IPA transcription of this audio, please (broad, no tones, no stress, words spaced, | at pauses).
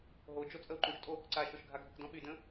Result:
ɦod͡ʒo t͡sʼəu̯ǃũʃtʼo | ǀa ʃoʃɡʱaɡʱəkdɔ̃ ɓydə̃